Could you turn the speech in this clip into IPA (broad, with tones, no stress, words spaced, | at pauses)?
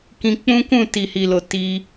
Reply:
kĩ˧k͡pũ˦kũ˦˨ ti˨hi˨lo˨ ti˧